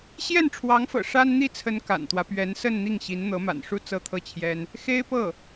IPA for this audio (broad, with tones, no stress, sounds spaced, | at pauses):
ɕ j ɛ˥˩ n ʈ͡ʂʰ w ɑ˧˥ ŋ f ɤ̰˨˩ ʂ a˥ n n̪ i˥˩ t͡sʰ ə˧˥ n k a̰˨˩ n t̪ w ä˦ p ɥ ɛ˧˥ n s ə˥˧ n n̪ i˥˩ ŋ ɕ i˧˥ n n̪ ɤ˧˥ m a̰˨˩ n ʂ u˥˧ t͡s ɤ˥˧ t̪ʰ ɤ˥˩ t͡ɕʰ j ɛ˥ n | x e˥ ɪ̯ p ɤ˥˩